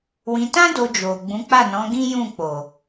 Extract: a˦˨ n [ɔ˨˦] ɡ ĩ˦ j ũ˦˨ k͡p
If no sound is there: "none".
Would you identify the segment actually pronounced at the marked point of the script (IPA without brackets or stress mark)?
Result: ɔ̃˨˦